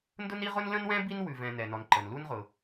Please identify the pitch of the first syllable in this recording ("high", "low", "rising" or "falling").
high